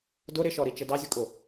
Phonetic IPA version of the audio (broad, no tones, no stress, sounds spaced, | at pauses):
d ʊ ɾ ɪ ʃ ɔ ɾ i t͡ʃ ə d ɑ zʲ ʊ kʼ ʊ